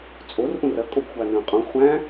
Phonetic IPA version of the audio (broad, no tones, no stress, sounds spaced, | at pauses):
t͡sʼ o r ʔ ũ r ɐ kʼ o b xʷ a n ə̃ː qʼ ũ χʷ æ̃